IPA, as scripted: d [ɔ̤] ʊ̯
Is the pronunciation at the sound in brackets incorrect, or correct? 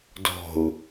correct